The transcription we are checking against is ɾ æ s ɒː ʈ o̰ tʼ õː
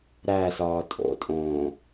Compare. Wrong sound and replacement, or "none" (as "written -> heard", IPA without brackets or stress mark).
ʈ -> tʼ